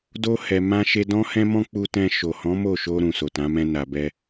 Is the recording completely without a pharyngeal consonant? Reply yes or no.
yes